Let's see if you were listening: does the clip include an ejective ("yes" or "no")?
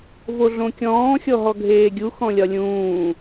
no